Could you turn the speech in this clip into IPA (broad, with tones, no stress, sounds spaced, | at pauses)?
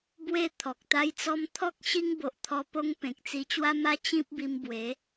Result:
b w e˥˧ t̪ʰ ɔ˨ k̚ t̪ a˦ j t͡s ɔ˦ m t̪ʰ ɔ˦ k̚ ɕ i˦ ŋ b o˨ ʔ t̪ʰ ɔ˧ p o˧ ŋ p ẽ˨ k̚ t͡s i˧ t͡ɕ w a˦ m a˦ t͡ɕ ĩ˦ p̚ b i˧ m b w e˨˦